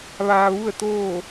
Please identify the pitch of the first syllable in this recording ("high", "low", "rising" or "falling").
low